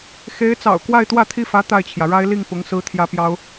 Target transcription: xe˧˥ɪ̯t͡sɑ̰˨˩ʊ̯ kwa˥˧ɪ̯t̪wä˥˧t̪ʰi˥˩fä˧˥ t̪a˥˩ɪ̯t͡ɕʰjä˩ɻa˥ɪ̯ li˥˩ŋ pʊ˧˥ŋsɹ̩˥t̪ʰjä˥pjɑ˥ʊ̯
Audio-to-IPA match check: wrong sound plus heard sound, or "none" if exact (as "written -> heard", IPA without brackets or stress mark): none